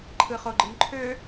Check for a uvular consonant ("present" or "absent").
present